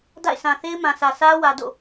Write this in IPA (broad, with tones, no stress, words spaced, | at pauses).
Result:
da̰˦˨ɪ̯sã˨θe˦ɪ̯ mã˨sä˨ sä˦ wä˨do̰˦˨